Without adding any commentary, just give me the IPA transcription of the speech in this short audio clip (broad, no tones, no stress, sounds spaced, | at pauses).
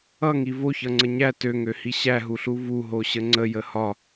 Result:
ʌ ŋ i v o ç ʌ ŋ͡ǀ ə ɲ æ t ø ŋ ø h i ɕ æ ɦ u ɬ u v u ɦ o ɕ ə ŋ͡ǀ ə j ə h ɒ